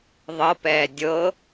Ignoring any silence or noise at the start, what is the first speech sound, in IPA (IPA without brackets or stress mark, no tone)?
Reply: ðˤ